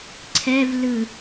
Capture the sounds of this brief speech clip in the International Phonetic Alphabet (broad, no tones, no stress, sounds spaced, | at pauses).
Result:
ǀʰ ɛ v l ɯ